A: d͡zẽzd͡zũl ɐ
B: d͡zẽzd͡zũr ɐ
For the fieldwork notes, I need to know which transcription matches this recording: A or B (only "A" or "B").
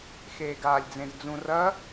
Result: B